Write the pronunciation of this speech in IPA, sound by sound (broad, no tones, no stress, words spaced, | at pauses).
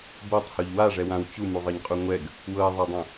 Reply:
bɤtˤhoʎ waʐɛwãw t͡ɕumuðˤɤɲqʼu ŋʷɛɡ | wɤe̯ðˤadˤõ